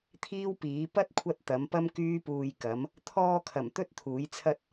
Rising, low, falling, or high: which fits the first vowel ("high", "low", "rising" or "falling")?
high